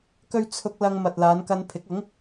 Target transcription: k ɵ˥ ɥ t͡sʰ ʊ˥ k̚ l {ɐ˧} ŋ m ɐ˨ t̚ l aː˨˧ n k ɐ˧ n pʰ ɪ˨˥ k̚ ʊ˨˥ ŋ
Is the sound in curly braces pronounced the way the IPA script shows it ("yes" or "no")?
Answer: yes